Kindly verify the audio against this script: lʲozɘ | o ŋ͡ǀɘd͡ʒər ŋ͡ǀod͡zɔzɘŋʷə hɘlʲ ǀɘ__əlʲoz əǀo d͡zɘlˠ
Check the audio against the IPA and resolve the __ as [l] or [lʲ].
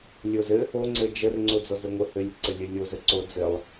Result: lʲ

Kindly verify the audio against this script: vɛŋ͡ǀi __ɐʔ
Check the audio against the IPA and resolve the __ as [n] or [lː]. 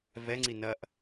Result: n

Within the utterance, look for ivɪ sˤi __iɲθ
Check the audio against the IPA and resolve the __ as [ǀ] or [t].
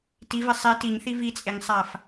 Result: t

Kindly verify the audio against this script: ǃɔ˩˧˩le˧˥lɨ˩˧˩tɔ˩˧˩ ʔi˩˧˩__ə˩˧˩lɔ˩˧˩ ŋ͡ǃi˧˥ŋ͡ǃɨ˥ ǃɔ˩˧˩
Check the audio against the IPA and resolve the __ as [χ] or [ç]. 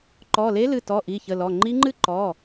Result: ç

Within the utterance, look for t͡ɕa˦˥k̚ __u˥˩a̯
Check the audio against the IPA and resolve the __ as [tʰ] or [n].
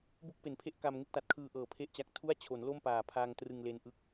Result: tʰ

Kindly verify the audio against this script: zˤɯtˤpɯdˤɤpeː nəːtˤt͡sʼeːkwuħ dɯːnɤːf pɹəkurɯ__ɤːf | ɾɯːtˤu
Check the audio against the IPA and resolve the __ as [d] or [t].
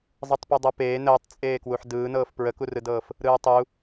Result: d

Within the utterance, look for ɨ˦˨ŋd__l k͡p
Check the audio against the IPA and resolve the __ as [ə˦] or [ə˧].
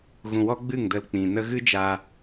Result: ə˧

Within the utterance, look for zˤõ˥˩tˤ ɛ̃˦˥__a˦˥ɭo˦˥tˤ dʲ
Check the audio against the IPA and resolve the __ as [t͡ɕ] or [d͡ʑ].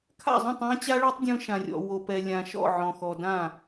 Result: t͡ɕ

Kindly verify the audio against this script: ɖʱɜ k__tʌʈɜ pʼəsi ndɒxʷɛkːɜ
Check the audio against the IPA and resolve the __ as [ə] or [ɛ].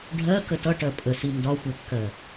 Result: ə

